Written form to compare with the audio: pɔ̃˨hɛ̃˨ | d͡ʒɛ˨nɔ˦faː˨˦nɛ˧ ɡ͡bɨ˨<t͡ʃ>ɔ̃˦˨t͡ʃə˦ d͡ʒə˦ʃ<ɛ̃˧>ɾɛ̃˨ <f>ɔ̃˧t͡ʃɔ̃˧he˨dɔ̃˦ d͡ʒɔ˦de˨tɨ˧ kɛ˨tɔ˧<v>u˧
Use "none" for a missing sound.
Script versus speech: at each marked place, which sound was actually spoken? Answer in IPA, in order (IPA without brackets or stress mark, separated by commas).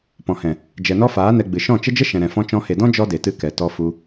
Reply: ʃ, ɛ̃˨, f, f